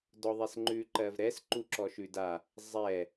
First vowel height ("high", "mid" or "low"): mid